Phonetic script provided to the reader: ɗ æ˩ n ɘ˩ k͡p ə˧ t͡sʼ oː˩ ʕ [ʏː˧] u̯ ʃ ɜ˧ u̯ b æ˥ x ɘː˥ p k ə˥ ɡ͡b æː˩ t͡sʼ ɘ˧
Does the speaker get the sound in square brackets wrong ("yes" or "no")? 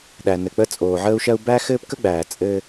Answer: yes